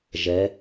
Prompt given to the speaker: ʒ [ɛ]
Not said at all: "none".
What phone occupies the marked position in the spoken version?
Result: ɛ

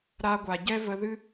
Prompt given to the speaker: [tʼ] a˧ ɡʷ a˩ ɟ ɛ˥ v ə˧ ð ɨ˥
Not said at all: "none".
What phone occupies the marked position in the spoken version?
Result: ɾ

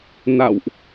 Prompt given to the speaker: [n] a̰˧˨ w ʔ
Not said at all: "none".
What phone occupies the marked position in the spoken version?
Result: n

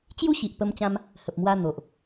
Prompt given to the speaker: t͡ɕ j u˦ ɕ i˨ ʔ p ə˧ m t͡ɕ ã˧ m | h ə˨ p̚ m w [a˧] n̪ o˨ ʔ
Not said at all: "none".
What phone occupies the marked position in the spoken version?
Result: a˧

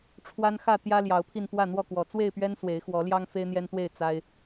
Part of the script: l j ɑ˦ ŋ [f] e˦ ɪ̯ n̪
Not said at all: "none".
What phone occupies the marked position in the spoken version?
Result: f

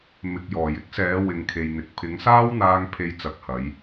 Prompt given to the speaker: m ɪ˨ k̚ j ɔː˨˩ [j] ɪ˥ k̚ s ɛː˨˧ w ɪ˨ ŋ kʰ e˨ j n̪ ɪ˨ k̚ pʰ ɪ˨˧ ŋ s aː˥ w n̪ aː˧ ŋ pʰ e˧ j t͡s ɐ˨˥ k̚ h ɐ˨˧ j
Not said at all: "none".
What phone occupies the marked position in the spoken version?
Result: j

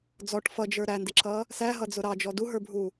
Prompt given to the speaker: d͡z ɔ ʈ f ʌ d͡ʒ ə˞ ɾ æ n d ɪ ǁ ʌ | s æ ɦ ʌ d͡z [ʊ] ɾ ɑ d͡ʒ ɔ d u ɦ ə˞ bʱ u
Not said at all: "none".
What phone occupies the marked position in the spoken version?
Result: ʊ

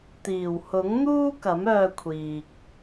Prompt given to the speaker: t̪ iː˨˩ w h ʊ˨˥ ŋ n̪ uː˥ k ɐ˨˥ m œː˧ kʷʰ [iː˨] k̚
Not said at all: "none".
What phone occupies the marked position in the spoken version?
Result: iː˨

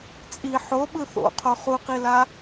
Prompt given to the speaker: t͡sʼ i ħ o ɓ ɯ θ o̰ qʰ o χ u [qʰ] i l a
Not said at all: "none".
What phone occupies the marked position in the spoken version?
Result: q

